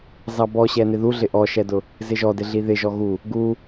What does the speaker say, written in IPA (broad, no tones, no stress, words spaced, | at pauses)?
zɑbɔɕɛnɪ ðuɮɪ ʔɔʃɛdʊ | zɪʒɔdɪɮi ðɪʒɔ ɣu | ɡu